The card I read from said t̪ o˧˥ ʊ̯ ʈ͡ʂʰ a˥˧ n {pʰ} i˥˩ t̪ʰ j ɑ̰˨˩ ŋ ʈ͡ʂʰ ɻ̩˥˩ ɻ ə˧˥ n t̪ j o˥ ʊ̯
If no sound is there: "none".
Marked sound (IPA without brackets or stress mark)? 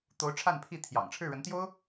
pʰ